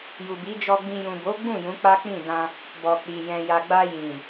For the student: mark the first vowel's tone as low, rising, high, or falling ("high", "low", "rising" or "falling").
low